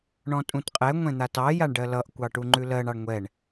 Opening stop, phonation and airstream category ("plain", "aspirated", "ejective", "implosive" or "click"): ejective